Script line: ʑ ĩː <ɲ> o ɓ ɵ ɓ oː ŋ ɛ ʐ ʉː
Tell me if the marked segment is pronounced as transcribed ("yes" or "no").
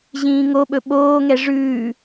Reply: no